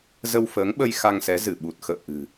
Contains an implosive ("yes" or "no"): yes